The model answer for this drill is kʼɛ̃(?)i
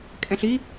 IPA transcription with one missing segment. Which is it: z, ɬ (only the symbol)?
ɬ